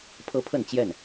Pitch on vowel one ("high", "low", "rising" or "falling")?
high